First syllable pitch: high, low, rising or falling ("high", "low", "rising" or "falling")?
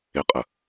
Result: rising